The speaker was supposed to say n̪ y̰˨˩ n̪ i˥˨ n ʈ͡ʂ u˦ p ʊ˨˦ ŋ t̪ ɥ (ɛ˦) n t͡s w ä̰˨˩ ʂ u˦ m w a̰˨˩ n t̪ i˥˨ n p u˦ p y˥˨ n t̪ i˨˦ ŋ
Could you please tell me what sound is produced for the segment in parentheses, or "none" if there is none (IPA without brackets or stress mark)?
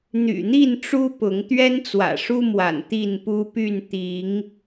ɛ˦